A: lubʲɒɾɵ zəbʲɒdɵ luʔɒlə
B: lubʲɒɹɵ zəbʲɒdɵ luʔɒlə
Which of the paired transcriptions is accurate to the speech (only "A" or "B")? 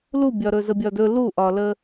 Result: A